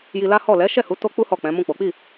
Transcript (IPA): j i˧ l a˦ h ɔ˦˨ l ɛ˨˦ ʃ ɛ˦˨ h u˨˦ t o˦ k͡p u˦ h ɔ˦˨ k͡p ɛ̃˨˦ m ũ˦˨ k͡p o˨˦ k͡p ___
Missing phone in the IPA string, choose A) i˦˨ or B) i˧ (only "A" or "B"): A